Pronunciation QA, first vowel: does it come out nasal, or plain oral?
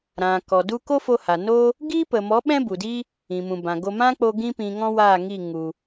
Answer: nasal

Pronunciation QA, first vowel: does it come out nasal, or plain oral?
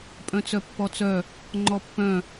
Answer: nasal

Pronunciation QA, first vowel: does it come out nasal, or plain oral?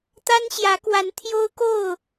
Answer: oral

